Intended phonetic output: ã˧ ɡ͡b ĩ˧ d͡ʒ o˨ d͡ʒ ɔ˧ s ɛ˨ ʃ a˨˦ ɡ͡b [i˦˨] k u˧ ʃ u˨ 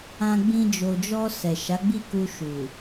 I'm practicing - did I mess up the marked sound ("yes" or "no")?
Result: no